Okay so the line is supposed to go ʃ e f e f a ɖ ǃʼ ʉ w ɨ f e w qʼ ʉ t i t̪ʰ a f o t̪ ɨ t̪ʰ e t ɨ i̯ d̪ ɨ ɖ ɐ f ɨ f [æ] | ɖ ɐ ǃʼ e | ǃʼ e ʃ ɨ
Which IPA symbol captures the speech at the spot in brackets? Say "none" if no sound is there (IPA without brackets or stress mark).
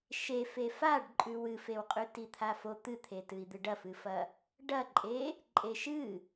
ɐ